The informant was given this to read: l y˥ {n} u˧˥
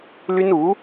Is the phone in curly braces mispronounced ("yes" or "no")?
no